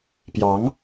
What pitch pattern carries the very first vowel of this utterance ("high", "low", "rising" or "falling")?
rising